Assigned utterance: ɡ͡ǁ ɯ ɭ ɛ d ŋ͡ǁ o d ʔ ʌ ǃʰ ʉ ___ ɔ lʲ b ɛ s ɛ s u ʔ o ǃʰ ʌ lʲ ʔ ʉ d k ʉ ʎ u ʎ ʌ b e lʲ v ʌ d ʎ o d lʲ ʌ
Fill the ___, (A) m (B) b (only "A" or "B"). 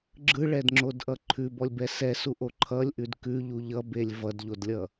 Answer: B